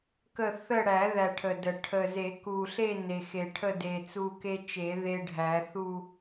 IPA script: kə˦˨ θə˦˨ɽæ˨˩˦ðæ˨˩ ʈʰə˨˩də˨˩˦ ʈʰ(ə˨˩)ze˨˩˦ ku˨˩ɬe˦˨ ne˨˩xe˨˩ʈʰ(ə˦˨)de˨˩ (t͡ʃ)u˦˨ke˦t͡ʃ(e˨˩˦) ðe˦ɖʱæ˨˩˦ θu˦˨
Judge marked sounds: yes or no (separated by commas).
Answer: yes, yes, no, yes